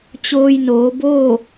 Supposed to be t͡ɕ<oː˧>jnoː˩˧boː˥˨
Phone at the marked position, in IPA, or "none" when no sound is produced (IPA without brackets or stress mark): oː˧